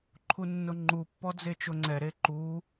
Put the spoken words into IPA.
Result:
ǃʰ u nː ʊ ŋ͡ǃ u pː ɔ d͡z e t͡ʃ ʊ ŋ͡ǀ ɛ ɾ e ǃ u

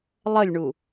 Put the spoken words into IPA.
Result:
lˠ ə lʲ ɳ u

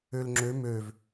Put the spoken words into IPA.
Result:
ø l ŋ͡ǁ ø m ø v

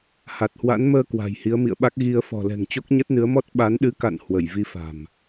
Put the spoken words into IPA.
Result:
h a˨˩ t̚ h w a̰˧˥ n m əː˧ k w a̤˨˩ j h i˨˦ ə̯ m ḭ˧˨ ə̯ ɓ a˦˥ k̚ ɣ i˧ ə̯ f ɔ̤˨˩ l ɛ̤˨˩ ŋ t͡ɕ o˦˥ k̚ ɲ ə˦˥ t̚ n ɨ˨˦ ə̯ m ɔ˦˥ t̚ ɓ a˨˦ n ɗ ɨ˨˦ k a̰˧˨ n h w ə˧˩ j v i˧ f a̤˨˩ m

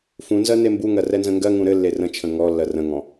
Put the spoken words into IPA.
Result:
f ũ n z ɜ n e m b u ŋ ɜ r ɛ n z ə̃ ŋ ɡ ɜ ŋ ũ ɾ ɘ lː e r ə̃ t͡ʃʰ ə̃ ŋ ɔ lː ɜ r ə̃ ŋ ɔ̃

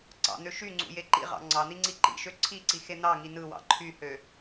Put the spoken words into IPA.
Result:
ǀ ɑ̰ n̪ ø ʃ y ŋ͡ǀ ṵ j e ǃ ḭ ʁ ɑ̰ ŋ͡ǀ ɑ n̪ i ŋ͡ǀ i ǃ ḭ ʃ ø ǀʰ i ǀ i x e n̪ ɑ ŋ i n ɯ w ɑ̰ ǃʰ y h ø

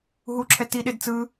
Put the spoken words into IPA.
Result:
ɦ u ǁʰ ɛ t i ɗ e d t͡s ɯ

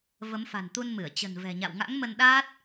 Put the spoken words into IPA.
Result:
v ə˨˦ m f a̤˨˩ n t̪ u˧ n m ɨ˧˩ ə̯ t͡ɕ ə̤˨˩ n v ɛ̤˨˩ ɲ a̰˧˨ w ŋ a̰˧˥ ŋ m ə˧ n ɗ aː˦˥ t̚

